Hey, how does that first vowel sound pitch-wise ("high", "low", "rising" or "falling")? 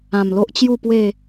low